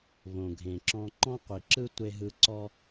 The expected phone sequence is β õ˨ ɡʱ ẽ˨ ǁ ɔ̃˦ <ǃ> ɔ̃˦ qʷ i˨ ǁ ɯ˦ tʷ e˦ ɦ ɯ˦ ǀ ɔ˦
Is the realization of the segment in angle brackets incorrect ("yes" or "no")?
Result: no